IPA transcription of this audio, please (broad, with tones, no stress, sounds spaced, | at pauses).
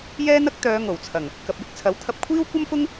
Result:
j ɛː˥ n̪ ɐ˥ k̚ t̪ œː˨˧ ŋ o˨˩ w t͡sʰ ɐ˨˩ ŋ | k ɐ˨ p̚ j ɪ˧ k̚ t͡sʰ ɐ˨˥ w t̪ʰ ɐ˧ p̚ kʷʰ iː˥ w kʷ ɐ˥ m f ʊ˥ ŋ